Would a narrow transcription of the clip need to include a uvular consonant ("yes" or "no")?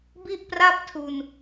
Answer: no